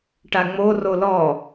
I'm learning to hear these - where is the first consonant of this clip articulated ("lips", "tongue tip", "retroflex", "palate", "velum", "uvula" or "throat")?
retroflex